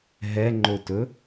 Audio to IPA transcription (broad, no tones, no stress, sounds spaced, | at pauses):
ɦ ɛ ŋ͡ǃ o t ɵ